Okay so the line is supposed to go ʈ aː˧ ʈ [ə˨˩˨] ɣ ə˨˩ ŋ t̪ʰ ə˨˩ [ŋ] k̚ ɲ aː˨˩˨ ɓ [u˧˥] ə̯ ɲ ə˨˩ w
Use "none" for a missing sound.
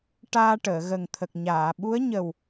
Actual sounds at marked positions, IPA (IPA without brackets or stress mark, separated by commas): əː˨˩˨, none, u˧˥